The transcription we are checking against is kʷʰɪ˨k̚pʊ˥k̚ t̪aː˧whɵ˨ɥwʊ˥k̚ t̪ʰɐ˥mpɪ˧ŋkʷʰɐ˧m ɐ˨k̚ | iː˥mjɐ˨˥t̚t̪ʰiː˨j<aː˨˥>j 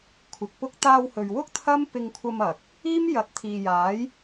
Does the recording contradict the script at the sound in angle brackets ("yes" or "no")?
no